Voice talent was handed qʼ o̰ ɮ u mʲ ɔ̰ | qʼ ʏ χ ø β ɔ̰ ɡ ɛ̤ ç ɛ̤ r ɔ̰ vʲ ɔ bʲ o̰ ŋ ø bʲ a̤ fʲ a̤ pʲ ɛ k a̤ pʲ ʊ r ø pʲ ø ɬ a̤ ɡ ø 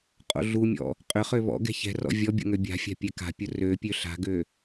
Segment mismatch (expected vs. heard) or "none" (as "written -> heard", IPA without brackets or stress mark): none